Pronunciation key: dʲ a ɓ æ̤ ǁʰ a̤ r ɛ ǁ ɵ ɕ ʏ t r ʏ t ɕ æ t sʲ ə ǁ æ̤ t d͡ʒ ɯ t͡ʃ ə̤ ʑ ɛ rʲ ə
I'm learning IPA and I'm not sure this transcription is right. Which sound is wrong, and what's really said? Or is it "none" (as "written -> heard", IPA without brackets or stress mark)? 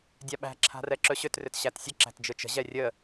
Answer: none